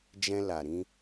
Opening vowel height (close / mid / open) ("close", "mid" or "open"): mid